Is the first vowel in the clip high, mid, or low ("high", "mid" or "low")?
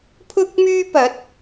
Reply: high